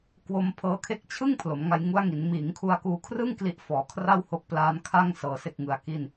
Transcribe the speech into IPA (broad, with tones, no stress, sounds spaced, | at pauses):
k w o˧ m pʰ ɤː˧ kʰ e˦˥ k̚ t͡ɕʰ ɯ˥˩ ŋ pʰ l o˩˦ m ŋ a˧ j ŋ u˦˥ a̯ ŋ i˩˦ n m iː˩˦ ŋ kʰ u˧ a̯ k uː˧ kʰ r ɯ˥˩ ŋ k l i˦˥ ʔ f ɔː˩˦ kʰ r a˥˩ w h o˦˥ k̚ p l aː˦˥ n kʰ a˥˩ ŋ s ɤː˧ s e˥˩ k̚ ŋ ɯ˧ a̯ k i˥˩ n